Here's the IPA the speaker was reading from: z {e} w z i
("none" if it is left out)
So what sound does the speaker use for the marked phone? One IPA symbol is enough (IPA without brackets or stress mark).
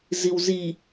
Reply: i